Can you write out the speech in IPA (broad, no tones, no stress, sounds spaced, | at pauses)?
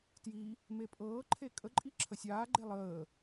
t j i | m e pʼ ɤː ǃʰ e kʼ ə ǃʼ i ǁʰ ə sʲ aː ɡ͡ǃ e lˠ əː